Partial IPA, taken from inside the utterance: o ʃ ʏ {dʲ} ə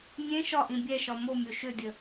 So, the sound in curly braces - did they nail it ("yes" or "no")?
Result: yes